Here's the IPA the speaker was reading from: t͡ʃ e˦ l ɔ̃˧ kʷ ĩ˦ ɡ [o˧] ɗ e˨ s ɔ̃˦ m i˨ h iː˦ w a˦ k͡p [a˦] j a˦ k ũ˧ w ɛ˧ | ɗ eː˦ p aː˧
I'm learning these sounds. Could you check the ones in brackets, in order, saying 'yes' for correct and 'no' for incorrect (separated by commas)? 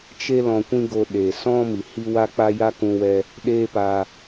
yes, yes